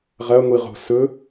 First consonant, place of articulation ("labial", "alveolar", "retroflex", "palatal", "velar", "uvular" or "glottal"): uvular